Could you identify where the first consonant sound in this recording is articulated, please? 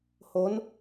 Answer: glottal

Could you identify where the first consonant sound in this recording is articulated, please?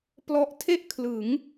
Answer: labial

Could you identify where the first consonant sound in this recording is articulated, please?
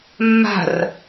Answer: labial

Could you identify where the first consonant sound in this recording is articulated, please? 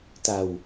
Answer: alveolar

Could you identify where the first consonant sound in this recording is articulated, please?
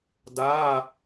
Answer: alveolar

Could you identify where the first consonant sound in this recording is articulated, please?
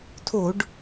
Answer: alveolar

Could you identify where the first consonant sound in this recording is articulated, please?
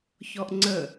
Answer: palatal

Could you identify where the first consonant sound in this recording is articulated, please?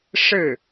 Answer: retroflex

